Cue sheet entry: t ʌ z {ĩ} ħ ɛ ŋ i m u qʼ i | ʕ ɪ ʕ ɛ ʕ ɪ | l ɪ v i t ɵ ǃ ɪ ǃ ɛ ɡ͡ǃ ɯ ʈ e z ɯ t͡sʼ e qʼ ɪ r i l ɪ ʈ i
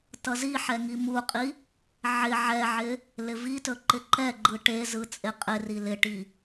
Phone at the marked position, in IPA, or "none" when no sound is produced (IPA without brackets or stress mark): i